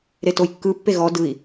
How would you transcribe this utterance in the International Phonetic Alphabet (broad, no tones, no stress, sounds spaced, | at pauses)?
ɾ e t o j kː ɯ pː e ɣ ɔ d ɯ i̯